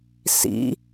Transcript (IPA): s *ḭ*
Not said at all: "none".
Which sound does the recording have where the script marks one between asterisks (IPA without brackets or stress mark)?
ḭ